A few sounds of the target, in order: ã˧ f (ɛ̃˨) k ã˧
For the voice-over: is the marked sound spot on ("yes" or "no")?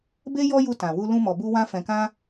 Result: yes